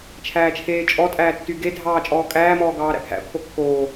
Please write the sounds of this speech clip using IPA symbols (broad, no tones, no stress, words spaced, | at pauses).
t͡ʃʰæːt͡ʃʰeːt͡ʃʼɔtʼæː tːyɡedʱɑː t͡ʃʼɔːkʼæːmɔː ɡɑːɾæ̰pʰæ̰pʰo kːoː